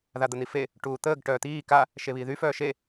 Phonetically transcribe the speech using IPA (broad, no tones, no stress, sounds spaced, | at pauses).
ð a d̪ ə n̪ i f e | ʈ uː t̪ əː ɡ ʈ œː t̪ iː k a | ʃ e β iː ð y f œː ʃ e